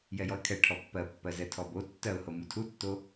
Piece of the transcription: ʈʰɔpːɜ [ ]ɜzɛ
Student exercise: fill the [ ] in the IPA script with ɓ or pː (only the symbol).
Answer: pː